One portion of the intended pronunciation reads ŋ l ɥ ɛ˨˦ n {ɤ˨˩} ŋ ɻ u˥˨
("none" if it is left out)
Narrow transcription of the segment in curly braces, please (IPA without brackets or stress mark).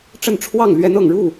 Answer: ɤ˨˩